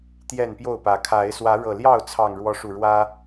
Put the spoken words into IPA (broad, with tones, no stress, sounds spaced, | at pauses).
t̪ j ɛ˥˨ n p j o˥˨ ʊ̯ p ä˨˦ kʰ a˨˦ ɪ̯ s w ä˨˦ ɻ ɤ˨˩ l j ɑ˥˨ ʊ̯ t͡sʰ ɑ˨˩ ŋ ɻ w ɔ˨˦ ʂ u˨˩ ɻ w ä˦